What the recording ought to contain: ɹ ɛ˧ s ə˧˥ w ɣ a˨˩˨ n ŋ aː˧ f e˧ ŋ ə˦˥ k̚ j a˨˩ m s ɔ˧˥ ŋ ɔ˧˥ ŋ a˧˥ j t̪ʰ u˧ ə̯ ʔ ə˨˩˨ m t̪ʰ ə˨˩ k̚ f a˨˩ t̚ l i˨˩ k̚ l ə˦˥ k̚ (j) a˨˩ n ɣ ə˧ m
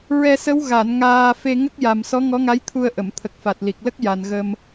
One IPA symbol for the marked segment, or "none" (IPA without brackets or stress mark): j